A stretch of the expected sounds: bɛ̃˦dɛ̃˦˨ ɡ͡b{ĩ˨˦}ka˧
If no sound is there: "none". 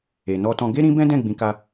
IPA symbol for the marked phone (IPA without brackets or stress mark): ĩ˨˦